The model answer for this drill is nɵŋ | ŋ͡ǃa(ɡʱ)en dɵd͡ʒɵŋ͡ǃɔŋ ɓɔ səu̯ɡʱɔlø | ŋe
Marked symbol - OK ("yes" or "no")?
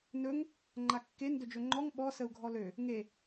no